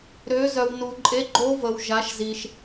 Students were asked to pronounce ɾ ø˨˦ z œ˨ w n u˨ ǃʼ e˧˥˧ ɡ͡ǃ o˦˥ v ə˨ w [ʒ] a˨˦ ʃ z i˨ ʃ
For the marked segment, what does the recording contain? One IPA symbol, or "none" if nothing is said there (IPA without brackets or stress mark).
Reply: ʒ